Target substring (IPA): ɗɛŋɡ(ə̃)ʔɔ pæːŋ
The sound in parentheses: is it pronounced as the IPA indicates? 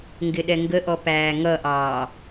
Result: no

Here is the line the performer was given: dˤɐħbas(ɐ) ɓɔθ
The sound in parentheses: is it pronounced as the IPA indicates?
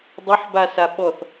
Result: no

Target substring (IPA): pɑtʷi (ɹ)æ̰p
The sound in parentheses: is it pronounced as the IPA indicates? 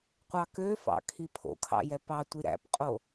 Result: no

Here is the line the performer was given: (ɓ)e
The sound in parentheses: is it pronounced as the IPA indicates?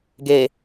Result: no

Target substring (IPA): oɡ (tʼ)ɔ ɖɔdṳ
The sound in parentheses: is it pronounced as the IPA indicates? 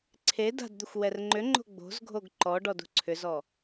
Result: no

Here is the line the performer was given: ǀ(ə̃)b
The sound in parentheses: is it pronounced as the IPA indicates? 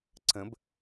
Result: yes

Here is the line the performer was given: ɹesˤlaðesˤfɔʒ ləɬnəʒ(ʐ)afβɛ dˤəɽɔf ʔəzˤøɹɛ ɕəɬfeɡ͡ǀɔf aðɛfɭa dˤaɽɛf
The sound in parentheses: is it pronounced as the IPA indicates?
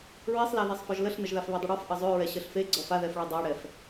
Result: no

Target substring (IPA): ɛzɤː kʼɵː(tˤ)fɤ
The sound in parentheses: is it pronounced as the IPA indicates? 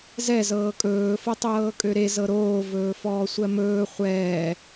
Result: no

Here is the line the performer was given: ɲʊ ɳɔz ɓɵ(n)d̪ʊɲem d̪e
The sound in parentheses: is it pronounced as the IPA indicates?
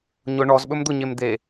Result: no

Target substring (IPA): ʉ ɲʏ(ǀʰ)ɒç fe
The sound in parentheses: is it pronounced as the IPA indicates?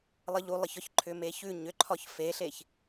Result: no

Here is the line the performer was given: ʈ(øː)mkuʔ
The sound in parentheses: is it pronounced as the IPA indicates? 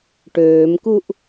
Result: yes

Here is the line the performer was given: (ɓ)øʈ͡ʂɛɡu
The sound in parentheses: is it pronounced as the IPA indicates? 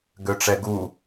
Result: no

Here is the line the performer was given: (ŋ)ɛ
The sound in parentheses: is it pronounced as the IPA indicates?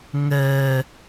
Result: yes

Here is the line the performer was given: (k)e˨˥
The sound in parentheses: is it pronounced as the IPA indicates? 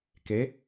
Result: yes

